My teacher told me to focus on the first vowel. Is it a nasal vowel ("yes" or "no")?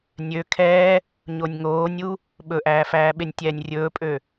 no